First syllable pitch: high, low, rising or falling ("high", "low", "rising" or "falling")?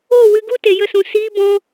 falling